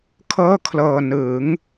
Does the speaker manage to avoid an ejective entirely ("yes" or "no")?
yes